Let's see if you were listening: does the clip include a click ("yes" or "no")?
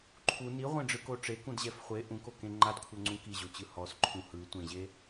yes